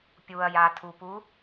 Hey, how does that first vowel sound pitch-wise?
low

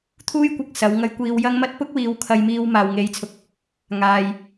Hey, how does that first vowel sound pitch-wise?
high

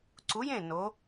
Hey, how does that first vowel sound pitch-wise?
rising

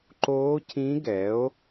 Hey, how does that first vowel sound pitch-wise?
rising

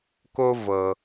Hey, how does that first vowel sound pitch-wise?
high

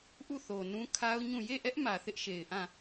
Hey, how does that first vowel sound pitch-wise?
falling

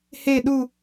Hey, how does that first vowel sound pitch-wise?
falling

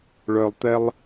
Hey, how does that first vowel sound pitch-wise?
low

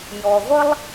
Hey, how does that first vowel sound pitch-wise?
low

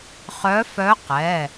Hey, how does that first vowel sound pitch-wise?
rising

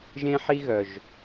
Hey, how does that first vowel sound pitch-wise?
high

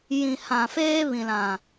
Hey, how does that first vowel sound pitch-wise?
low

